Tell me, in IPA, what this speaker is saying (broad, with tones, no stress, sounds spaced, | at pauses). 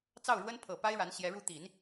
t͡s ɑ˥˩ ʊ̯ ɻ w ə˥ n pʰ ɤ˨˩ p a˥ ɪ̯ ɻ a˧˥ n ɕ j ɛ˧˥ ɻ u˥˩ t̪ i˨˩˦ n